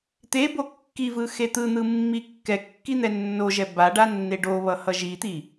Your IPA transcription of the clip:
t̪ e b o kː i v ɯ x e t̪ ɯ n̪ ɯ mː i kː ɛ kː i n̪ ɛ nː o ʒ ɛ b a ɖ a nː e ɖ o β ʌ h ʌ ʒ i t̪ i

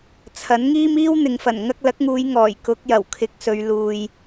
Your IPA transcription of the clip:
t͡sʰ ɐ˨˥ n ŋ iː˥ m iː˥ w n̪ ɪ˨ ŋ f ɐ˨˩ n ŋ ɐ˧ k̚ l ɐ˨˥ k̚ ŋ uː˨˧ j ŋ ɔː˨˩ j k ʊ˨˥ k̚ j ɐ˨˩ w kʰ ɪ˨˥ k̚ s ɵ˨˧ ɥ l uː˨ j

